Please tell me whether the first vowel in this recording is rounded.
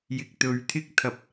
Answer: no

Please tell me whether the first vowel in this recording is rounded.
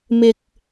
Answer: no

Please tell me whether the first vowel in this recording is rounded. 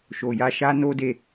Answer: yes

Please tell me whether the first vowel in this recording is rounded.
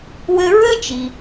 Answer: no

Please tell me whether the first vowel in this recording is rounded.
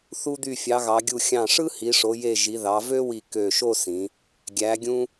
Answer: yes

